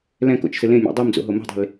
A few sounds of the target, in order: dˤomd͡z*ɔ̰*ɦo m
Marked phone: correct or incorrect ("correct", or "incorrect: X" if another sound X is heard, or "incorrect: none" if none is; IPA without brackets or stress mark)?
incorrect: o̰